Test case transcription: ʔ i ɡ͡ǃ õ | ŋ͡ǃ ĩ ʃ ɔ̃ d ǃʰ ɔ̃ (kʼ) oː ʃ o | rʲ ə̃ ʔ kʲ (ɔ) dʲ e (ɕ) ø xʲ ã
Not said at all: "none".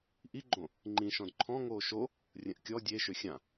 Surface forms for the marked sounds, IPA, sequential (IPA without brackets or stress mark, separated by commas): ŋ, ɔ, ʃ